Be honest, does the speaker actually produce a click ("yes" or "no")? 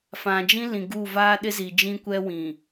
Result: no